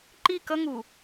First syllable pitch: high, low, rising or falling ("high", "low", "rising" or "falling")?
falling